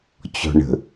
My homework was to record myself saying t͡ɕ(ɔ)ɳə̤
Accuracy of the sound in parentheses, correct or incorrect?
incorrect: ɔ̤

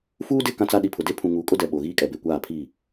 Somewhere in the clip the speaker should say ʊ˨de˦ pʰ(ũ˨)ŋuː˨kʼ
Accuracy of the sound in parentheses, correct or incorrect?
correct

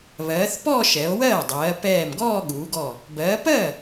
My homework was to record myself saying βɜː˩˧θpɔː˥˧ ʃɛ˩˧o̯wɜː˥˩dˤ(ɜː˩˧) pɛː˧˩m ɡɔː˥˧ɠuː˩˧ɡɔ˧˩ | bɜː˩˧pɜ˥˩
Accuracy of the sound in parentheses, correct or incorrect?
correct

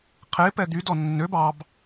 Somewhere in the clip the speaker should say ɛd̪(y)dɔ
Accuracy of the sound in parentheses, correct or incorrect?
correct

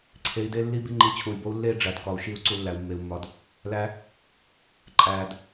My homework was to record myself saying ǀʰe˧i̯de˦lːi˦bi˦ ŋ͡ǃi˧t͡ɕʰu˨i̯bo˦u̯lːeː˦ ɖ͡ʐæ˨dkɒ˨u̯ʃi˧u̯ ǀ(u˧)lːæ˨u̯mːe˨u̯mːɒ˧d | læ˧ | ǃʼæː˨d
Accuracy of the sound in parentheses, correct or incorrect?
correct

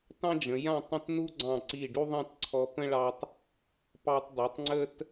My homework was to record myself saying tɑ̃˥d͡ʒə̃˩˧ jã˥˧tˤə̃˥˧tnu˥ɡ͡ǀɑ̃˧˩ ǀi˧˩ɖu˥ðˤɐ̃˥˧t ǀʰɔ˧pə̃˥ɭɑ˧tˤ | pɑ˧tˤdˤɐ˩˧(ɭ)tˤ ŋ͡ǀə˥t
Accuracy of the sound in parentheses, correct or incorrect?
incorrect: none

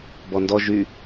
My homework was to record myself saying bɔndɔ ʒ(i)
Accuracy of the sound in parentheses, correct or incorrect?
incorrect: y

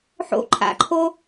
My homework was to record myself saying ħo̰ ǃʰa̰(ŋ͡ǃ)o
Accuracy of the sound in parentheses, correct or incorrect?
incorrect: ǃʰ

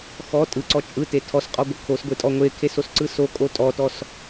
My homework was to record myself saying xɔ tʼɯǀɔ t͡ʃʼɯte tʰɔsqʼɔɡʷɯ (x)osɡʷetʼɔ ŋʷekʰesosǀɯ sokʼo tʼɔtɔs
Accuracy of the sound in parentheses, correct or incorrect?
incorrect: kʰ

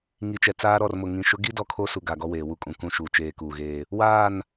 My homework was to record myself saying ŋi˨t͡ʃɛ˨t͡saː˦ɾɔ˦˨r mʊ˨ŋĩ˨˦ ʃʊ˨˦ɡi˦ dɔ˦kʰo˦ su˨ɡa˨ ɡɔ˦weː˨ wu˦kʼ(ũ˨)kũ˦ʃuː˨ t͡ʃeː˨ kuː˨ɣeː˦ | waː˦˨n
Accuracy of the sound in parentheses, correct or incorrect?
correct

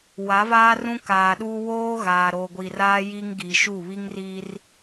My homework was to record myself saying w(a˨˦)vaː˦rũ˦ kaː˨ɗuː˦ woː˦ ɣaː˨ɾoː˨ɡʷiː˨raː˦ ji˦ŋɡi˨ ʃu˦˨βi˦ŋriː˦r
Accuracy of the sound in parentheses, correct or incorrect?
correct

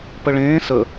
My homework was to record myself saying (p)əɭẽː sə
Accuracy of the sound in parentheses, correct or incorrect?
correct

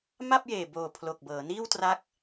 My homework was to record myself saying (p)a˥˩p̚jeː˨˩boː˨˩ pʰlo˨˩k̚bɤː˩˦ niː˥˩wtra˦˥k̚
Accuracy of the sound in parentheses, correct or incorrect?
incorrect: m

